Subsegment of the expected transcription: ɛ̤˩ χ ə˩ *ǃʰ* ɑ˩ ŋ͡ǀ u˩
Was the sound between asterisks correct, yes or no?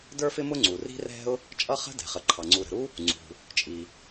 yes